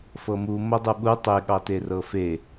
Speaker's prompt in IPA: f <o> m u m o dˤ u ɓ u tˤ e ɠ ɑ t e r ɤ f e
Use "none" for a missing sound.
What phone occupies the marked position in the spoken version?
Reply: ɤ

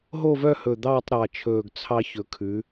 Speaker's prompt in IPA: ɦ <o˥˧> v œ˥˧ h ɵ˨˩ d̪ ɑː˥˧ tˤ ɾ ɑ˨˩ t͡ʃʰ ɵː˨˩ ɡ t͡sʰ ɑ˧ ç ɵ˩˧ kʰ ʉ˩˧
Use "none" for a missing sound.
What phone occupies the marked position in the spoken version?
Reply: o˥˧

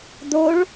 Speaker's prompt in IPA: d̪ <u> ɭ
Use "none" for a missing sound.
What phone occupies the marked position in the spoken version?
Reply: o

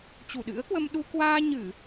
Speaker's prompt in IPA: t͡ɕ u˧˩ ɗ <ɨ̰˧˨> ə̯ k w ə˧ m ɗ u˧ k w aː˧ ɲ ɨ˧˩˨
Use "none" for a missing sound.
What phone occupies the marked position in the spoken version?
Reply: ɨ̰˧˥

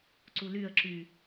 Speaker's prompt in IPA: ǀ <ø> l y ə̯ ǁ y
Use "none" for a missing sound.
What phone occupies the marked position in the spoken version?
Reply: u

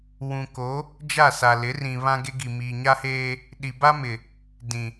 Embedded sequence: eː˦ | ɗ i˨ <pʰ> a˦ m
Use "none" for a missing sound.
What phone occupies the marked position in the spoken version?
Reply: b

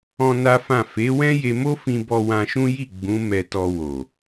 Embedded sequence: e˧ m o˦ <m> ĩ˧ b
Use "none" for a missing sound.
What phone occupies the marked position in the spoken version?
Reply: f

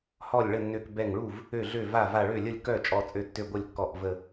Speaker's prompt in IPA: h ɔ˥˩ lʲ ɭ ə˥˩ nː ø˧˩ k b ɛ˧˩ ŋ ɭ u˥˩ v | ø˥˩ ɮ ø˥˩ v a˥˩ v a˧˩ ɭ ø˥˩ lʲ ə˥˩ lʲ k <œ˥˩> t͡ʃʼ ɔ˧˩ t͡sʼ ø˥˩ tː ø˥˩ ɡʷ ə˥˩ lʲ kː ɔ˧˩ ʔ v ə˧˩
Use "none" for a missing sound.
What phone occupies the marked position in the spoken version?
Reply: œ˥˩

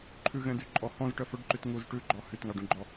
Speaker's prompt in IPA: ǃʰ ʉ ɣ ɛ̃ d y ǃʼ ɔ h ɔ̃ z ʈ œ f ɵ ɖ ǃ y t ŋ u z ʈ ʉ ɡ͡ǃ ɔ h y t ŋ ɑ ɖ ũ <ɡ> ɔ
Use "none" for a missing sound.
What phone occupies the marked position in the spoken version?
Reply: ɡ͡ǃ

